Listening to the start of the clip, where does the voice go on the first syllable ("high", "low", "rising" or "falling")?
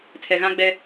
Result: low